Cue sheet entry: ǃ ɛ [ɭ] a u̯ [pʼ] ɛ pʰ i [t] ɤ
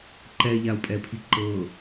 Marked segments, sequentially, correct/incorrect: incorrect: ʎ, correct, incorrect: ǃ

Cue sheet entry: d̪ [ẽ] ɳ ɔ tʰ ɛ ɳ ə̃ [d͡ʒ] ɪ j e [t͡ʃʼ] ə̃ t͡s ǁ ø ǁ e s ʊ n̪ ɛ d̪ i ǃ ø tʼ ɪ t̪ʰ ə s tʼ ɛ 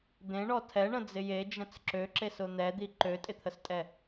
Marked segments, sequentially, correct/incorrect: correct, incorrect: d͡z, incorrect: d͡ʒ

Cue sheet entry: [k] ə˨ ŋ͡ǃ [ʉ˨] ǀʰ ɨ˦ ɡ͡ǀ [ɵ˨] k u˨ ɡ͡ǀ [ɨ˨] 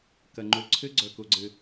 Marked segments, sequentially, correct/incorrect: correct, incorrect: u˨, correct, correct

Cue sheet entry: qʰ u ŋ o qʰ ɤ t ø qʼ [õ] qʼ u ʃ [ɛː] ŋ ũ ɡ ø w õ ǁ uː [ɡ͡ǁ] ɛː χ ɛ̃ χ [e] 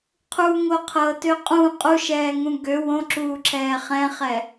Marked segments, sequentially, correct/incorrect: incorrect: ũ, correct, incorrect: ǁʰ, incorrect: ɛ

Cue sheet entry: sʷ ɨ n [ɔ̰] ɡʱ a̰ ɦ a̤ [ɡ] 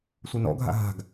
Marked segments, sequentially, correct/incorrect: correct, correct

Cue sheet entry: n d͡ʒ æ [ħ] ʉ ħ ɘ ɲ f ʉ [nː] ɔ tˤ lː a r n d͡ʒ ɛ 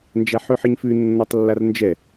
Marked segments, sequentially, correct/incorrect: correct, correct

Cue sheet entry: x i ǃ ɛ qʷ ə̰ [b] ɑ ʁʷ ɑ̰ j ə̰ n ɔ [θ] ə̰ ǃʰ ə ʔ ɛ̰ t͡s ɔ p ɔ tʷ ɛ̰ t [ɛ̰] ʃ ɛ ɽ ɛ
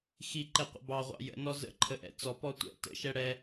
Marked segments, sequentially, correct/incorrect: correct, incorrect: z, incorrect: ə̰

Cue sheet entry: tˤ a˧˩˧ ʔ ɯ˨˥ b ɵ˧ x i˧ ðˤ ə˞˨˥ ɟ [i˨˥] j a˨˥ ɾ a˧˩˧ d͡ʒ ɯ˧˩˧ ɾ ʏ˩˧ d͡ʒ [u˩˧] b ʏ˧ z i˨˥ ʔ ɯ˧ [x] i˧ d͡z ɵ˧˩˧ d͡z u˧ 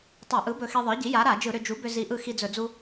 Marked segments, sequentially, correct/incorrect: correct, incorrect: u˨˥, correct

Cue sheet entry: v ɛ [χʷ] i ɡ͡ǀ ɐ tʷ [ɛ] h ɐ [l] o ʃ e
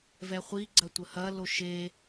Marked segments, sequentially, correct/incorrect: correct, incorrect: ə, correct

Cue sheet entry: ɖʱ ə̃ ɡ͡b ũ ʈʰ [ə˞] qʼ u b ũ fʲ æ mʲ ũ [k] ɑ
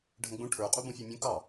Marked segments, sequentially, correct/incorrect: correct, correct

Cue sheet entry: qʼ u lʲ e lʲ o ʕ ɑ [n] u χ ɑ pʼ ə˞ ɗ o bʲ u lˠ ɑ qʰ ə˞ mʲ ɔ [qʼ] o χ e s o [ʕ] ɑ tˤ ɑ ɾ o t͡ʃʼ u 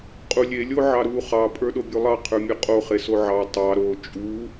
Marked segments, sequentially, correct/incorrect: incorrect: ɾ, correct, correct

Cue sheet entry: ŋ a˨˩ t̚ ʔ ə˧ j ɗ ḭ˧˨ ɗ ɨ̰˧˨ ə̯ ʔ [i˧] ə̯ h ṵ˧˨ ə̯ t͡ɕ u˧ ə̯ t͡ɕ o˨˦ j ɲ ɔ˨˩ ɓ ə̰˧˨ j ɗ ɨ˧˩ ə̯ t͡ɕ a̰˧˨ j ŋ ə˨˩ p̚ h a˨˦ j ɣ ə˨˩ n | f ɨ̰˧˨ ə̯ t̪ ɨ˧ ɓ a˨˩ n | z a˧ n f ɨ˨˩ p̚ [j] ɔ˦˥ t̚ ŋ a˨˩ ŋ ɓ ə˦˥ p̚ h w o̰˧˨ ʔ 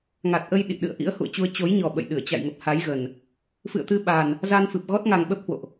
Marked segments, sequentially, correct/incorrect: incorrect: ḭ˧˥, incorrect: ɣ

